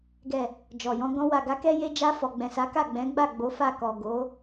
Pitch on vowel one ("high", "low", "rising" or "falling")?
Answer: low